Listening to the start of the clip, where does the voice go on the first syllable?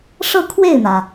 falling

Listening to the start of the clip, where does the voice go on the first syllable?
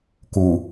low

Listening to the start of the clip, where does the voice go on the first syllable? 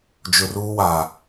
low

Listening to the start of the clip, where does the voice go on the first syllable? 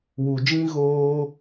low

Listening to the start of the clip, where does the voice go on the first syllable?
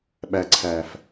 low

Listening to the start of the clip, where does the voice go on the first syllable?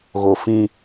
low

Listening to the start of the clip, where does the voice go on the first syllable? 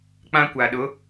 high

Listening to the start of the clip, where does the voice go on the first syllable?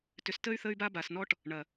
low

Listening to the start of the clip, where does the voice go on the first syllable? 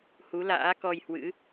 rising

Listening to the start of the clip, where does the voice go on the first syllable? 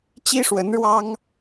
high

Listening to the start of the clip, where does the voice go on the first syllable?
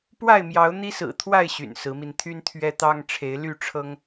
falling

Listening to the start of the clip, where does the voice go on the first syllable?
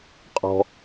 low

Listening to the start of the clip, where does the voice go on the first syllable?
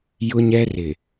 high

